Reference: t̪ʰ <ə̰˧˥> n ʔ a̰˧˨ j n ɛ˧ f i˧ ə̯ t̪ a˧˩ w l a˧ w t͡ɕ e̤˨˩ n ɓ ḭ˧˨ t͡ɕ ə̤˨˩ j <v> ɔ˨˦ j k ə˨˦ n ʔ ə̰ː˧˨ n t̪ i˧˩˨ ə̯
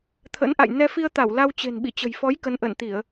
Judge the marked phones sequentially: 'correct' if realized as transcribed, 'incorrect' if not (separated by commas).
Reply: correct, incorrect